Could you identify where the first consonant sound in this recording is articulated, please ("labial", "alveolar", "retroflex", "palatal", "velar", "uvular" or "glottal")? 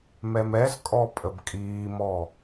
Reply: labial